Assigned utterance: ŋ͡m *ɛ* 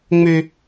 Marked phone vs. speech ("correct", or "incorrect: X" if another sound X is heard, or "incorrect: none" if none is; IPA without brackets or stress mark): incorrect: ø